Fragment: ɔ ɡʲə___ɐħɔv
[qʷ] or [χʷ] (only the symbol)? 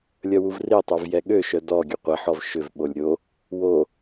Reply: qʷ